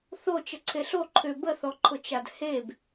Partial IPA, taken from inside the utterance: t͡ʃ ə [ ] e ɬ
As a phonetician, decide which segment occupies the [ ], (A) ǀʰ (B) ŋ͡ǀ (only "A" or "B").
A